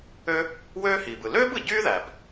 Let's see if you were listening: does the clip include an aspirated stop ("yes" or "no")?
no